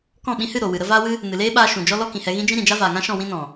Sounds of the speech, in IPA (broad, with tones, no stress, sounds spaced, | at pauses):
k ɔ̃˦˨ ɓ ĩ˧ h ɨ˦˨ ɾ o˨ w ɨ˨ ɾ ə˦ v aː˦ w ɨ˦ | n ɨ˨ l eː˦ ɓ aː˧ ʃ ũ˨ d͡ʒ ɔ˦ l ɔ˦ k ĩ˨ h ɛ˧ ɣ ĩ˦ d͡ʒ ĩ˦ ɾ ĩ˨ d͡ʒ a˦ v aː˨ ŋ ã˦ ʃ ɔ̃˦˨ w ĩ˦ n ɔ̃˨